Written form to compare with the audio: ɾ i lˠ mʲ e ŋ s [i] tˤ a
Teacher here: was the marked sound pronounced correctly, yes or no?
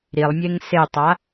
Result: no